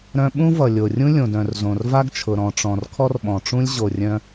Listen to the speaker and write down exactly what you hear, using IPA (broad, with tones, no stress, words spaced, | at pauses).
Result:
ɾœ̃˧ɓũ˥ vʌ˩ lʲo˩rʲũ˥ lʲõ˩dœ̃˩r zõ˩rva˥ɡt͡ʃʰʊ˩ ɾɔ̃˩ʈ͡ʂɔ̃˩r kʰɔ˥rɓɔ̃˩ʈ͡ʂũ˥lʲ ʑo˩rʲœ̃˧